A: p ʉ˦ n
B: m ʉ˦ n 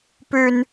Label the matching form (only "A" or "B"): A